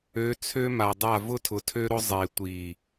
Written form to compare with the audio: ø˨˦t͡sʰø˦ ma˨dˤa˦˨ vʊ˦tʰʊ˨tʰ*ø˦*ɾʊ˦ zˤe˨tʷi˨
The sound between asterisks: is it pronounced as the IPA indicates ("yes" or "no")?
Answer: yes